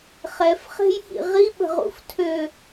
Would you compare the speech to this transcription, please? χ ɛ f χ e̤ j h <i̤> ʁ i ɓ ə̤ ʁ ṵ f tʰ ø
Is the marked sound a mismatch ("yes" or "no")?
yes